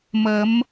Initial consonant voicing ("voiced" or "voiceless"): voiced